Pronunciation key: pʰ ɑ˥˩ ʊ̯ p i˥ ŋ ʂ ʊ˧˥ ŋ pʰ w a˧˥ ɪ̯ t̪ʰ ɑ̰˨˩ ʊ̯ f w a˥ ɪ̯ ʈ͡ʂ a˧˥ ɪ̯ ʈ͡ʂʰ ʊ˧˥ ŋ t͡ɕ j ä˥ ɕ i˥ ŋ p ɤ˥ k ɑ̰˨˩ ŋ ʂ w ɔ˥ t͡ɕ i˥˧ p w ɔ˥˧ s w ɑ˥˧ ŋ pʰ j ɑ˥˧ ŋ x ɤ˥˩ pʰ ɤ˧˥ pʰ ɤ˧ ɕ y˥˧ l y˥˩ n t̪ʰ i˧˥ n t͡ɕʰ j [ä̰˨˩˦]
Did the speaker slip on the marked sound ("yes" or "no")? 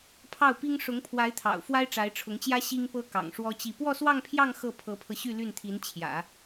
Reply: no